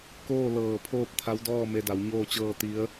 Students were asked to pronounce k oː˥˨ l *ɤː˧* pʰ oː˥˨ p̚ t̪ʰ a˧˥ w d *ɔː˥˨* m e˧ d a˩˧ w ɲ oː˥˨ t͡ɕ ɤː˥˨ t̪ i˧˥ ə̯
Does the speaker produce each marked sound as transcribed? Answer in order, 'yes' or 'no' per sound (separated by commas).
no, yes